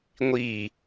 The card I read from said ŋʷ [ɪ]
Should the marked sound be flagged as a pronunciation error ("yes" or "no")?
yes